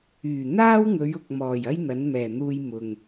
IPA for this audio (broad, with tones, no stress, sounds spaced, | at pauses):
yː˨˩ n̪ aː˥ w ŋ ɵ˨˧ ɥ ʊ˨ k̚ m ɔː˨˩ j ɐ˥ j n̪ ɐ˨˥ n m ɛː˨˩ n̪ uː˧ j m ʊ˨ ŋ